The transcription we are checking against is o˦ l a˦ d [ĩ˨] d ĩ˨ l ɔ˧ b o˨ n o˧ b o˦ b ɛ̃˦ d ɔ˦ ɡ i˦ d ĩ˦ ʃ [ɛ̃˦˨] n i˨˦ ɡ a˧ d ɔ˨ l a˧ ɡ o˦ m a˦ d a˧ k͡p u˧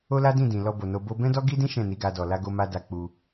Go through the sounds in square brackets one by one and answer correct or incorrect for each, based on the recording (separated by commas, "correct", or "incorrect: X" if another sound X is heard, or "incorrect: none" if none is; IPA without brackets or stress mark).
incorrect: ĩ˦˨, correct